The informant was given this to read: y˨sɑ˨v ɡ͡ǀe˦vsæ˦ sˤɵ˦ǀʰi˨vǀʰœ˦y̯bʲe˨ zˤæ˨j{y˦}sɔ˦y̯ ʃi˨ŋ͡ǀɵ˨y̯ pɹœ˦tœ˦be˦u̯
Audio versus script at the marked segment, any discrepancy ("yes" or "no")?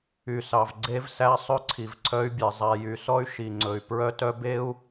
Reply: yes